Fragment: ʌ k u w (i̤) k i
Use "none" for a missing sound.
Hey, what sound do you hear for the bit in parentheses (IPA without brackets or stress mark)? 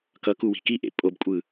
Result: i̤